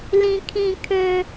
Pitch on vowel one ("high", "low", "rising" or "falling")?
high